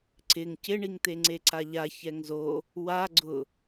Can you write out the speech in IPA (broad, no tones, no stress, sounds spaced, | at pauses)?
ǀ ɪ ŋ c ɪ ɳ i ŋ t̪ e ŋ͡ǀ e ǀ a ʎ a ç ɛ ŋ z o | w a ɡ͡ǀ ʊ